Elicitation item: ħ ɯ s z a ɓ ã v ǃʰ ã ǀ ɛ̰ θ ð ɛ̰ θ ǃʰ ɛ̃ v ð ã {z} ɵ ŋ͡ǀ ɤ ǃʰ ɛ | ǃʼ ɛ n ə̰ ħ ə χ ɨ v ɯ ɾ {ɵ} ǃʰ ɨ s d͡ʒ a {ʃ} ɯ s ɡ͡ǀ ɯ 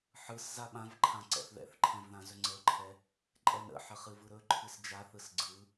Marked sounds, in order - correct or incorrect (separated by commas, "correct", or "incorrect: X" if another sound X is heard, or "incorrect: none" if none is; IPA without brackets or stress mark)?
correct, correct, incorrect: θ